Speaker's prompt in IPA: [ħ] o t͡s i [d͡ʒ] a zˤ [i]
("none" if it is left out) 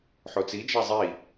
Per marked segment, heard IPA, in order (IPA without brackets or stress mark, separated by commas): ħ, d͡ʒ, i